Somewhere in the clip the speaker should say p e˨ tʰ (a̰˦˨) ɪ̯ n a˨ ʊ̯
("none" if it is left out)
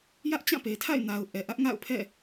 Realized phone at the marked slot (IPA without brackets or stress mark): a̰˦˨